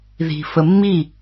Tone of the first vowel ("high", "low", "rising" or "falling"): low